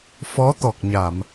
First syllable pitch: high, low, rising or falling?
rising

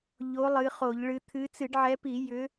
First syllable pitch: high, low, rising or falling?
rising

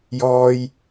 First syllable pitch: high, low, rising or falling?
high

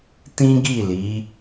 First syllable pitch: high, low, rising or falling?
high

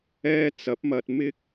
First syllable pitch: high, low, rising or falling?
high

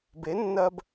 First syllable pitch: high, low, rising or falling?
rising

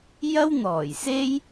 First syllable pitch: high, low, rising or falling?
high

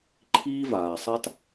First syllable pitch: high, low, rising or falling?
high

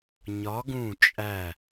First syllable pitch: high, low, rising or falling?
rising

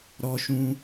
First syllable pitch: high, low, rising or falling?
high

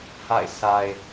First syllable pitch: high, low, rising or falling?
falling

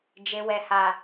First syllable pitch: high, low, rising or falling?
low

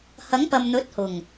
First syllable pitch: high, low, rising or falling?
rising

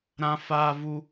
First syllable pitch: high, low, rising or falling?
high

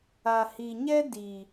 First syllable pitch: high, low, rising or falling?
low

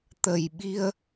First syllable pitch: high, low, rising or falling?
low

